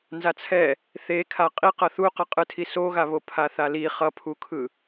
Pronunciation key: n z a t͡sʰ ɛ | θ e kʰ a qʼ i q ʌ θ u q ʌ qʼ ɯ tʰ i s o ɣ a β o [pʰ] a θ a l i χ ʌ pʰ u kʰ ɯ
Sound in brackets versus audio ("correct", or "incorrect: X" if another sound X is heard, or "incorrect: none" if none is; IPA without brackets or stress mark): correct